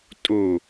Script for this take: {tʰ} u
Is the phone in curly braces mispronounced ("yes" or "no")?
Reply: yes